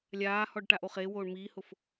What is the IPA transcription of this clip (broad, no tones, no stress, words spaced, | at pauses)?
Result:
lʲaːhɔɖʈaʔo χewoːɳ miːhʊf